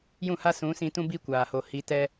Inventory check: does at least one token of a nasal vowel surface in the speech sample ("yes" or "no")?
yes